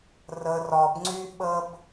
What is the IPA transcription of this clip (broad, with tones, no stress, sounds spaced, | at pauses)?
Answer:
r ə˧ r ɒ˧ b ŋ͡ǀ y˦ ɓ ə˦ b